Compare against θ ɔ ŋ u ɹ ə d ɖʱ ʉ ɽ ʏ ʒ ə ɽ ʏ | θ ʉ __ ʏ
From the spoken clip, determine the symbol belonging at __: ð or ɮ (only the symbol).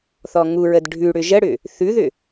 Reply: ð